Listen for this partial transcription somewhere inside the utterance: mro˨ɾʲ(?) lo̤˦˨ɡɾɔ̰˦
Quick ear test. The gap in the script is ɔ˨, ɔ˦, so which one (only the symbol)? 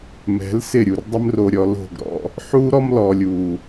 ɔ˨